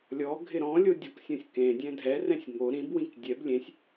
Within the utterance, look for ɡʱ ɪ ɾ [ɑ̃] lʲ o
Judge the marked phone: incorrect: ɔ̃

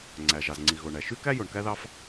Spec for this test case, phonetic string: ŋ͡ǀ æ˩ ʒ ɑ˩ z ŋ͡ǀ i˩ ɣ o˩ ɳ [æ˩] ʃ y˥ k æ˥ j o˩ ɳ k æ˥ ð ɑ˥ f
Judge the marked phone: correct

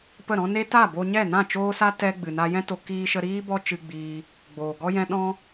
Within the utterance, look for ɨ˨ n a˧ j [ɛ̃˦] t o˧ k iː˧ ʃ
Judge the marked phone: correct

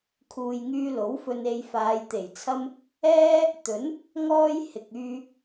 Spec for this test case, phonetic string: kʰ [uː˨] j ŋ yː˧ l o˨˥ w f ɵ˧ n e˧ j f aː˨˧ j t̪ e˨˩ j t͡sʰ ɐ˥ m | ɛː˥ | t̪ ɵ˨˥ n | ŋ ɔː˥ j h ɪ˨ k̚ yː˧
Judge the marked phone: correct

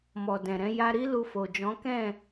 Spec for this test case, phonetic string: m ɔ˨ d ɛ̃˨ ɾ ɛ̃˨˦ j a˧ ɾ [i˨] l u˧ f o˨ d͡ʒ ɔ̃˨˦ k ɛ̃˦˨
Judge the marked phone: incorrect: i˦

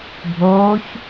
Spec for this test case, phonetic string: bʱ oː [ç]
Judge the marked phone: correct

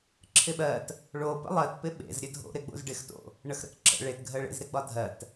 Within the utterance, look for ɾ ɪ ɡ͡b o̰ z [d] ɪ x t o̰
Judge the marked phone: incorrect: ɖ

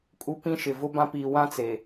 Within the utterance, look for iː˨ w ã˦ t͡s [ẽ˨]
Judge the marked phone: incorrect: e˨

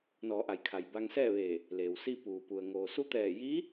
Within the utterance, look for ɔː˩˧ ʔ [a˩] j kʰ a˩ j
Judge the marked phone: correct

